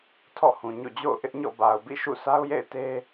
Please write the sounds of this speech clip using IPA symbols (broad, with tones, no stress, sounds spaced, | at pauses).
tʰ ɔ̰˦˨ h ũ˨ ɲ o̰˦˨ d͡ʑ o̰˦˨ ʊ̯ ʔ ɪ˦ ʔ ɲ ɔ̰˦˨ b a˨ ʊ̯ b ḭ˦˨ ʃ ṵ˦˨ s a˦ ʊ̯ j ḛ˦˨ ɪ̯ t e˦